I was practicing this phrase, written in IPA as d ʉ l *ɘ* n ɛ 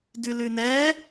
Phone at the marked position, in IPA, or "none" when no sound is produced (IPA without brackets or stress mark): ʉ